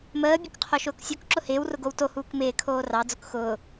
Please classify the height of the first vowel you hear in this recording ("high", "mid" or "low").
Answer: mid